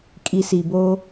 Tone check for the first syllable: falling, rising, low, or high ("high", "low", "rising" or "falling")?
low